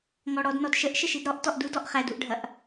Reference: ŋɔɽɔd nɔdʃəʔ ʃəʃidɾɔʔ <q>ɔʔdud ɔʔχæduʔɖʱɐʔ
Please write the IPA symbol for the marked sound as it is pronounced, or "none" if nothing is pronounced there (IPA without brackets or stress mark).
t